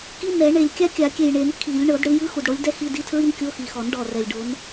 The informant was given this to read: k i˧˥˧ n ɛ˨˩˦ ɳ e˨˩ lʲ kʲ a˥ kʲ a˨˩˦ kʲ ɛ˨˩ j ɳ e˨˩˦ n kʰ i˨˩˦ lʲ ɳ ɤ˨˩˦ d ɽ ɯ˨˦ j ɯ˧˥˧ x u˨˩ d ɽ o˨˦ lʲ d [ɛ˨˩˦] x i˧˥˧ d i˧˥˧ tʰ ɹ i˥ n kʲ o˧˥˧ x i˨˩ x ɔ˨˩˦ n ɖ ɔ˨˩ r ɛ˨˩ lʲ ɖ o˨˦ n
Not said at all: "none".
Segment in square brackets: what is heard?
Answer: ɛ˥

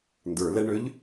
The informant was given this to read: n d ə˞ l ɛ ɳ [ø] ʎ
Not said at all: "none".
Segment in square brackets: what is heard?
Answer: ø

